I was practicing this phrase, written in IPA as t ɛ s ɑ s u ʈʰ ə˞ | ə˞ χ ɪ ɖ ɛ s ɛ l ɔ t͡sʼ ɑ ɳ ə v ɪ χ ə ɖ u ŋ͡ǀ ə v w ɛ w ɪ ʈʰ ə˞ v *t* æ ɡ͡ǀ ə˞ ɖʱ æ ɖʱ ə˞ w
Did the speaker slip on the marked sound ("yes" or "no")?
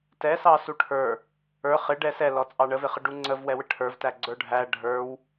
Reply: no